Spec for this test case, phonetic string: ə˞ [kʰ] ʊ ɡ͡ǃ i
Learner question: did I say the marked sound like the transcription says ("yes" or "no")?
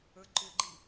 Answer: no